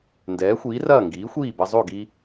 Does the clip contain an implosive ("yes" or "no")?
no